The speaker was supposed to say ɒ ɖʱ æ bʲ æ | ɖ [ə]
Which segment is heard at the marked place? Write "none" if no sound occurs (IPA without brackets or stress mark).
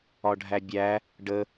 ə